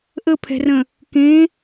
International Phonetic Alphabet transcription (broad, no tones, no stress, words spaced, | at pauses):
ʔəpʰɛ̤rə̃ | kẽ